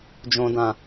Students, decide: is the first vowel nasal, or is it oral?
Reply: nasal